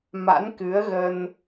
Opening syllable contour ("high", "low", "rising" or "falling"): rising